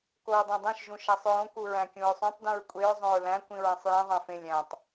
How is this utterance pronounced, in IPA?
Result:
koɹdˤæ̃dˤẽʃ ʒũʃæsˤɹõ kuɹæ̃kʲũɹsˤũtˤ dũɹkʷʼeɹ zˤõɹlæ̃ kʷĩɹæ̃sˤjĩ ðˤæ̃fẽlʲ æ̃tˤ

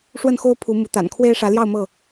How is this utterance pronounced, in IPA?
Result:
ʂwə˥˨nxo˦ʊ̯ pʰu˨˦mu˨˦t̪a̰˨˩n kʰwe˦ɪ̯ʂä˨˦ljɑ˥˨ʊ̯ mɤ˥˨

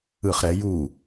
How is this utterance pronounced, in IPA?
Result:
ɯχ ɾɛ ju

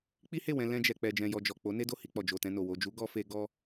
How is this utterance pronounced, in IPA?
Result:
k͡pi˦he˦˨ wɛ̃˧ lɛ̃˧d͡ʒɛ˨ k͡pɛ˨d͡ʒɛ̃˨jɔ˨ d͡ʒɔ˨ k͡po˨˦ ne˦do˦˨hi˧k͡pɔ˨ d͡ʒo˨tɛ̃˧no˨ wo˨d͡ʒu˨˦ ɡɔ˧fe˧ ɡɔ˧

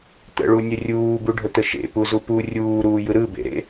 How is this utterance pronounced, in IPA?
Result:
t̪ə̰ɭunʲə rʲuːbuɖʱət̪ə ʃḛpuzu pu rʲuːɾuːjɯ ɾɯbḛɾḛ

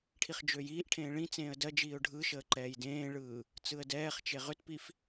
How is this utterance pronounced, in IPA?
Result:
ʈʰiχd͡ʒøjiːʔʈʰẽː ɭĩt͡sẽːə̯ dɜ d͡ʒiːʊ̯ɖʱɯʃəː ǃɛːjdẽːɭɯː | t͡sɯə̯dɛːχt͡ʃe ʁʏtpif

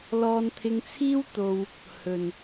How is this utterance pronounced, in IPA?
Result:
lɔː˧nt̪ʰɪ˧ŋt͡sʰiː˥w t̪o˧w | hɵ˨n

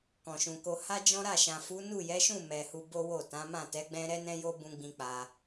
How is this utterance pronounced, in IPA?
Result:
kɔ̃˨ʃũ˨ko˧ ha˦d͡ʒɔ̃˦ɾa˦˨ʃã˨ fu˨˦nu˦˨jɛ˨˦ʃũ˦˨ mɛ˨ hu˧bo˦wo˦˨tã˨˦ mã˦˨tɛ˨˦ ɡ͡bɛ̃˦ ɾɛ˦nɛ̃˦jo˦ bũ˧ɡ͡bĩ˧ k͡pa˧

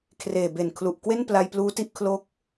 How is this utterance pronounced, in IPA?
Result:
kʰreː˨˩be˨˩nkʰlu˨˩ʔkwe˥˩n pla˧jpluː˦˥ti˦˥ʔ kʰlo˦˥k̚

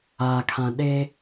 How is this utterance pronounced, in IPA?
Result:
akʰã ɗe

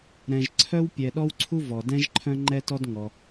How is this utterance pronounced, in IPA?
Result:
ɾɛ̃˩ʒǀʰœ˥wpʲɛ˩ ɗɔ˥wǀʰu˥ vɔ˩dɛ̃˥ʒ ǃʰœ̃˥ŋ͡ǃɛ˥tɔ˥dŋɔ˩

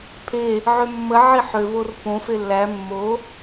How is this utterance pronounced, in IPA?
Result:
pʰe | ʕømːə ʕiħøvor põfe lːæ mːo

